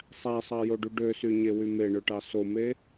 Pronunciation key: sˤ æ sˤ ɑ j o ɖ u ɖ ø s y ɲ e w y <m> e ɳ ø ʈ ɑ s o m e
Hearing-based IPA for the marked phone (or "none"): m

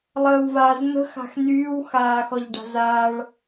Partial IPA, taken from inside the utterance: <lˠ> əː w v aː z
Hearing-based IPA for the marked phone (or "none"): lˠ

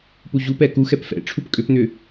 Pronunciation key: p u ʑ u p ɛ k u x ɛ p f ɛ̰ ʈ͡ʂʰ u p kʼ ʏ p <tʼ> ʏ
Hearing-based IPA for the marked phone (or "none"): n̪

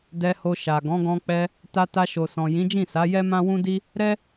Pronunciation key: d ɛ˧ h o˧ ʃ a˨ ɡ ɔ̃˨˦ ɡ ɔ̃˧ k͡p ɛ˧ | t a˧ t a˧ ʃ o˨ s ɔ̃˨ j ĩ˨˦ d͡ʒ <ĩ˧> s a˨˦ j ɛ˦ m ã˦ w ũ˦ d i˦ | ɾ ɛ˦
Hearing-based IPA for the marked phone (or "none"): ĩ˦˨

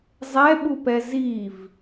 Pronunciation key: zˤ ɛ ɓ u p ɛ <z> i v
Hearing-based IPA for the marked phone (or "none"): z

